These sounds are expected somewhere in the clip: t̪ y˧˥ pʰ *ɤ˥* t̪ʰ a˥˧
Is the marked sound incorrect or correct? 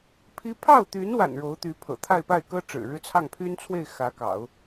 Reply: incorrect